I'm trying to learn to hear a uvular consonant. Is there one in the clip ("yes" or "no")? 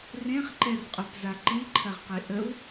yes